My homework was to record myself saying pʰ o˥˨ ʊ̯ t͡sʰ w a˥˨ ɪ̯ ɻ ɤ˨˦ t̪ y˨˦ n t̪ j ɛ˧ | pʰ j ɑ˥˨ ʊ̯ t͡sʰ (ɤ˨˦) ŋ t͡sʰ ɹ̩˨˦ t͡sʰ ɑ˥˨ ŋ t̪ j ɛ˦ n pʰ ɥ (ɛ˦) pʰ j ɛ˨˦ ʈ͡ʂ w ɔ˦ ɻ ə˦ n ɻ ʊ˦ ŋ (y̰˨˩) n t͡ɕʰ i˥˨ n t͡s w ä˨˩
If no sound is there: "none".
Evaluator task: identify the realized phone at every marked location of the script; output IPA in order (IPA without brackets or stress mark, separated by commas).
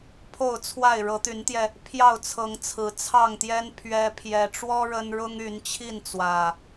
ɤ˨˦, ɛ˦, y˨˦